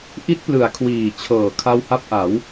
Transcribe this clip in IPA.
ʔ i˦˥ t̚ p l ɯ˩˦ a̯ kʰ w iː˨˩ t͡ɕʰ ɤː˨˩ kʰ a˦˥ w h a˦˥ p̚ ʔ a˩˦ w

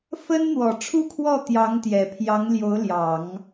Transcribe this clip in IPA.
f ə˥ n n̪ w ɔ˨˩ ʈ͡ʂʰ u˥˧ kʰ w ɔ˥˩ t̪ j ɑ˧˥ ŋ t̪ j ɛ˨˩ pʰ j ɑ˧˥ ŋ l j o˧˥ ʊ̯ l j ɑ˨˩˦ ŋ

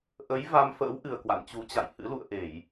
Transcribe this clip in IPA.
ʔ ə˨˦ j v a˧ m f ə̰ː˧˥ w ʔ ɨ˨˩ ə̯ k w a̰˧˨ n t͡ɕ u˨˦ t͡ɕ a̰˧˨ j h ɨ̰˧˥ l ṵ˧˨ ə̯ ʔ e˧˩˨ j

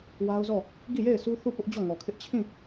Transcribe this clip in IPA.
w a˦ ʊ̯ z ɔ˦˨ | ɡ i˦˨ j e˦˨ ɪ̯ sʰ u˦ θ u˦˨ p ʊ˦ ʔ d͡ʑ ɔ˦˨ ŋ ɔ˨ kʰ ɪ˦ ʔ t͡ɕʰ ĩ˦˨

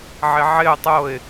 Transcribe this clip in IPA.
ʕ ɪ ʕ ɪ ʊ̯ tˤ o ɪ̯

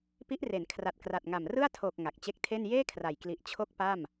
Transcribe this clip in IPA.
p i˦˥ ʔ r e˩˦ n kʰ r a˨˩ t̚ k r a˨˩ t̚ ŋ a˨˩ m r ɯ˥˩ a̯ tʰ oː˨˩ k̚ ŋ a˨˩ k̚ t͡ɕ e˦˥ k̚ tʰ e˥˩ n j eː˥˩ kʰ r a˨˩ j k l i˨˩ ʔ t͡ɕʰ o˦˥ k̚ p a˥˩ m

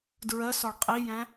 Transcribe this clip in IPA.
d ɹ ɜ s ɒ ɭ qʼ i j æ̃

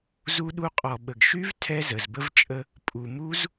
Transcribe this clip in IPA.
z u˧ ɗ u˧ qʼ ɔ˨ ɓ ə˨ ɡ ʃ y˦ v tʰ ɛ˦ z ə˨ z b ə˦ v t͡ʃʼ ə˦ | pʼ u˨ m u˦ z

